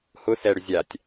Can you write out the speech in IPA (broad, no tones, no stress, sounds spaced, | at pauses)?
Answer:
h ʊ s ɛ ɽ ʏ zʲ a tʲ